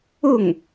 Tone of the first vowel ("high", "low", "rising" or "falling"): falling